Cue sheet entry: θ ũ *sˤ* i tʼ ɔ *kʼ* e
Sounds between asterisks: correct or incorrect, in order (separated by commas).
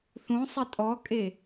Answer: correct, correct